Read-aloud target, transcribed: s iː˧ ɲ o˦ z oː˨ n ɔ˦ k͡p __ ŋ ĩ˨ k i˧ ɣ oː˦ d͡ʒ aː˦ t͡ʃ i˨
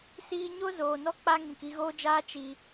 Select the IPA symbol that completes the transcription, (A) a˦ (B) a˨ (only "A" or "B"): A